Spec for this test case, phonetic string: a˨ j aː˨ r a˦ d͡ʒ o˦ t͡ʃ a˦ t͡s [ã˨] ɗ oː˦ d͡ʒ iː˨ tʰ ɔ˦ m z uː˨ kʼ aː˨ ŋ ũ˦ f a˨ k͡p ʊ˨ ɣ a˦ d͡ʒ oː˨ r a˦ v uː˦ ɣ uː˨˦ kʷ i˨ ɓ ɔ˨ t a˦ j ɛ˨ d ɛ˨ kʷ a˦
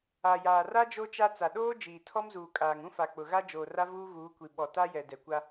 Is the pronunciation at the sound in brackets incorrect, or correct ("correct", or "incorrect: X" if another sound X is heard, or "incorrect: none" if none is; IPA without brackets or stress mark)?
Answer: incorrect: a˨